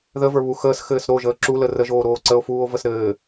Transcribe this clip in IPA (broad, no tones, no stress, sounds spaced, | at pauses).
ð ə v ə˞ β u x əː s x ɘː s ɾ o ʒ əː ǁ u l ə r ə ʒ oː ɾ oː ǀ ə o̯ f uː o̯ v ə s ɾ ɘː